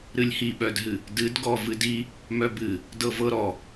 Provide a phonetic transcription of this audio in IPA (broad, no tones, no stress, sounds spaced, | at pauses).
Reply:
ɾ ɨ lʲ h i ɓ œ d ɦ ɨ | d ɨ d ɡ ɔ v ɨ d i | m œ b ɨ | d ɤ v ɤ ɾ ɔ